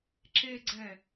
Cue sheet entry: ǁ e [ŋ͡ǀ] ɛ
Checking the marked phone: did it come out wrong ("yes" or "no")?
yes